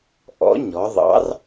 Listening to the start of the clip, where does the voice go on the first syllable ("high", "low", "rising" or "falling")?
rising